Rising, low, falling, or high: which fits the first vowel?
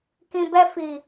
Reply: low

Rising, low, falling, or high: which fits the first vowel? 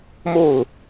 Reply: falling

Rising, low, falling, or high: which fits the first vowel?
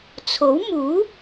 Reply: rising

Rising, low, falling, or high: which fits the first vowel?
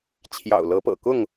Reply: low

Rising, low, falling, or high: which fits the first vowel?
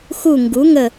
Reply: falling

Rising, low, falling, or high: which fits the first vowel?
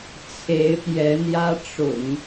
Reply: rising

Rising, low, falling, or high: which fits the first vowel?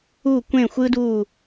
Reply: falling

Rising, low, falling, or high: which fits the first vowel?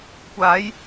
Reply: rising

